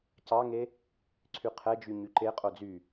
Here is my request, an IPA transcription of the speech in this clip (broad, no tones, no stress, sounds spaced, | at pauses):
c ɑ ŋ e | ǀʰ y qʰ ɛ d͡ʒ y ɲ y ǃ e qʼ o d͡z y